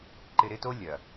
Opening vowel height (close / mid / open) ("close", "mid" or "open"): close